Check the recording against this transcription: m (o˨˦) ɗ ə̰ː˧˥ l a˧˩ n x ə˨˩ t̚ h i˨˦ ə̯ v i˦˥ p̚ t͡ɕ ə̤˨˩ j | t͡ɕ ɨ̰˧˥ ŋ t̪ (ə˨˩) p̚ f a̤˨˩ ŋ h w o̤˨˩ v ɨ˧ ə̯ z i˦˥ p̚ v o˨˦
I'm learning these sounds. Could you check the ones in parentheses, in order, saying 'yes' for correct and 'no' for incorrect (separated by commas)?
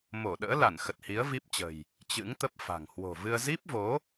no, no